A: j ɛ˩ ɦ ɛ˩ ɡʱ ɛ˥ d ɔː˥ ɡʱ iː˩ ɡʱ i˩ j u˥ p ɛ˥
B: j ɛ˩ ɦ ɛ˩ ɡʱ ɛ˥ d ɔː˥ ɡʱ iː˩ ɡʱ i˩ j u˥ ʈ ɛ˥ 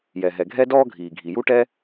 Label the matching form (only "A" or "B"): B